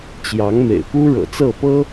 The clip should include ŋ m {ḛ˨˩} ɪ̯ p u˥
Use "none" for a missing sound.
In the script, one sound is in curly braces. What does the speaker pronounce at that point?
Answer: ḛ˨˩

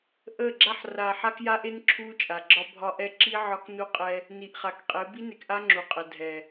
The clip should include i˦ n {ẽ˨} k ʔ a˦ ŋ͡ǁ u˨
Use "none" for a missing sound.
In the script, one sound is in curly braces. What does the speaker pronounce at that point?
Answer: e˨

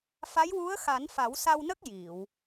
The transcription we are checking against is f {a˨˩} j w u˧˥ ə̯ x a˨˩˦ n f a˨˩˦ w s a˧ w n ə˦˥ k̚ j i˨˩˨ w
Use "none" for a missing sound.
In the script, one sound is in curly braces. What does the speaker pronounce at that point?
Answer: a˧˥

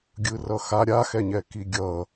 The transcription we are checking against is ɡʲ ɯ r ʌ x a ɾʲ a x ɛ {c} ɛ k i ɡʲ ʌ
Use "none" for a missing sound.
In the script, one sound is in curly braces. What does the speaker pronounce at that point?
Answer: ɲ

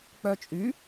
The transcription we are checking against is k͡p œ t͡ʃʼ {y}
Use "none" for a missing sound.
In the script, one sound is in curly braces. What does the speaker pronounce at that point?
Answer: y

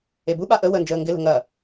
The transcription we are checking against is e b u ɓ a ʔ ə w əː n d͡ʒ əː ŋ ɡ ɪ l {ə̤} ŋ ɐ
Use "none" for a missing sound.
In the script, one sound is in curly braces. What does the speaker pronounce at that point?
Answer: ə̤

